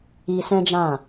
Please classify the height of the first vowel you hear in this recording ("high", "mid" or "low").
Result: high